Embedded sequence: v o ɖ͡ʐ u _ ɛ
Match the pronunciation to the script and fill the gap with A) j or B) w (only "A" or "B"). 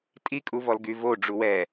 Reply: B